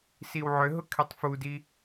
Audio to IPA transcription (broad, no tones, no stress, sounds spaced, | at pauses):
s i w ʕ ʏ ɦ ʊ kʰ e tˤ f u d i